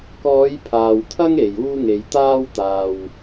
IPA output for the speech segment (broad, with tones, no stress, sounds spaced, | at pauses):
k ɔː˨˧ j pʰ aː˨ w t̪ʰ ɐ˥ ŋ e˨ j uː˥ ŋ e˧ j t̪ aː˥ w t̪ aː˧ w